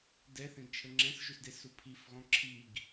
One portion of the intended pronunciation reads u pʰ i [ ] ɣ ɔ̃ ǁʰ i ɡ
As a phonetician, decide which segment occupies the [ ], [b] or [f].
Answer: f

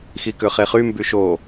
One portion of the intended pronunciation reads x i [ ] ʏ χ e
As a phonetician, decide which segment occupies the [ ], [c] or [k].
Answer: k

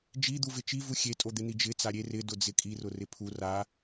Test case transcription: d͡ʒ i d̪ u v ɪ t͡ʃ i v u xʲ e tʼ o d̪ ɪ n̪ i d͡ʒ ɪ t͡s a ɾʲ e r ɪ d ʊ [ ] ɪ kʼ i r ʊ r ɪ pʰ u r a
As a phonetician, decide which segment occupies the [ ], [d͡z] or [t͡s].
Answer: d͡z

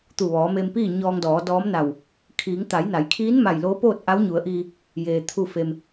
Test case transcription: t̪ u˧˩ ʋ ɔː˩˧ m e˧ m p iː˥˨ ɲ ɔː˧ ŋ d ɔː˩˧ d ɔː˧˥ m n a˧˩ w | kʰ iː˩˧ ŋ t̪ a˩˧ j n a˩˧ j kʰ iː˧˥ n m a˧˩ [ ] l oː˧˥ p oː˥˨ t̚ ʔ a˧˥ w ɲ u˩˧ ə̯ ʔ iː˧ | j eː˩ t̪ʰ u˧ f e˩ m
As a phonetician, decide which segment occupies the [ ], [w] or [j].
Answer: j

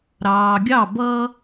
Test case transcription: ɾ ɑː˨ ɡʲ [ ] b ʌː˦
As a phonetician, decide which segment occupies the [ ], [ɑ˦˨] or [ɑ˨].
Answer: ɑ˦˨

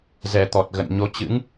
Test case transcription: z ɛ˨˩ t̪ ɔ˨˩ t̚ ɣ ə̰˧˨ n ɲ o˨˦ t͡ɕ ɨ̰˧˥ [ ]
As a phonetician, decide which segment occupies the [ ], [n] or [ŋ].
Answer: ŋ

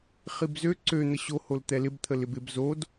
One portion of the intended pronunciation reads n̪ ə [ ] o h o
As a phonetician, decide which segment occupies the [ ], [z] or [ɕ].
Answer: ɕ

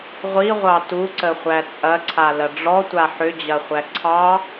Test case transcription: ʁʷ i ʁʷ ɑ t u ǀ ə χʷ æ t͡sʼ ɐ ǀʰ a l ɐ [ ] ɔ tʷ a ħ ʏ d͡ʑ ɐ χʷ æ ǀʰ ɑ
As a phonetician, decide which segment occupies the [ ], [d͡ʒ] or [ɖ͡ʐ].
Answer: ɖ͡ʐ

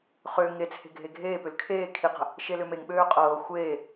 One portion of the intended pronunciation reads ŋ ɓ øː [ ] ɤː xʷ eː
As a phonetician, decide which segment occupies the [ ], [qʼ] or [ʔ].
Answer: qʼ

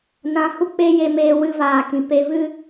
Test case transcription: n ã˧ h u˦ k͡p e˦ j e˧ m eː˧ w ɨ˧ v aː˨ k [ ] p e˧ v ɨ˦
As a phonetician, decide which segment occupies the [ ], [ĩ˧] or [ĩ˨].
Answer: ĩ˨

